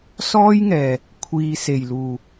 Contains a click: no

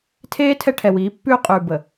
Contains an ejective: yes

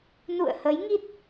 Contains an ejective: no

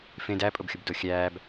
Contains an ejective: yes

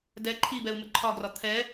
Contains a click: yes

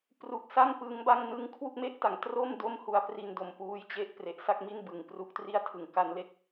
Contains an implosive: no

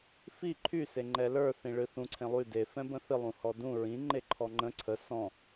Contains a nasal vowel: yes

